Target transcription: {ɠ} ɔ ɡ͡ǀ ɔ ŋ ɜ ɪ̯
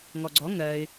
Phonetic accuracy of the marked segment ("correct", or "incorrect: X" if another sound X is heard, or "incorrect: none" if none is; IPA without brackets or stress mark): incorrect: ŋ